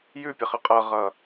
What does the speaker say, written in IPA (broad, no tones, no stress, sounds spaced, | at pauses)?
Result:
j ʉ pʲ ə χ ə qʼ ʌ ʁ ʌ